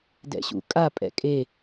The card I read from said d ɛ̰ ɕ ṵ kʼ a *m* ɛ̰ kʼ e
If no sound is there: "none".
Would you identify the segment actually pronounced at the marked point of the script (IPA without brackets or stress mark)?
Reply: pʼ